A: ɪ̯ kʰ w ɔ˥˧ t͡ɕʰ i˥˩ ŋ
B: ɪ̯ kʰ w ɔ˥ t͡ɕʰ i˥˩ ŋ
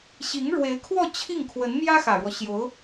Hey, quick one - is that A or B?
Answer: A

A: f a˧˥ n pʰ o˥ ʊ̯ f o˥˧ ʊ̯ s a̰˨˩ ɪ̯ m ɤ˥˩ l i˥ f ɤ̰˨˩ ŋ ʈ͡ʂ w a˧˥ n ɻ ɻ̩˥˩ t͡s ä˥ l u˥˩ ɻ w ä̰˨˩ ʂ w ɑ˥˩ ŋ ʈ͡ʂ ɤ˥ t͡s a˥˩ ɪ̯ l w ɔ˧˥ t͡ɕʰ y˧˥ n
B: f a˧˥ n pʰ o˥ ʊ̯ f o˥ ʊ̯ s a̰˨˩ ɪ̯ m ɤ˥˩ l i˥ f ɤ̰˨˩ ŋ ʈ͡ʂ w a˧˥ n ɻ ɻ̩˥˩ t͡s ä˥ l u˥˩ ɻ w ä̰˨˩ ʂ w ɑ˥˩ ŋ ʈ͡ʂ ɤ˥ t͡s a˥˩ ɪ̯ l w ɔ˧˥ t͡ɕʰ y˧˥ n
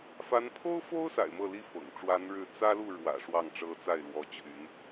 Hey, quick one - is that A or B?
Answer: B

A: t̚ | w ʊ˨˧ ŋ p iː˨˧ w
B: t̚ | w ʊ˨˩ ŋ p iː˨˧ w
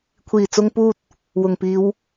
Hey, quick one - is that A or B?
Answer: B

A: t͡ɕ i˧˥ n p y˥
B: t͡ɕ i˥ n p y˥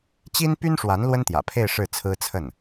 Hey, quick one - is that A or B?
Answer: B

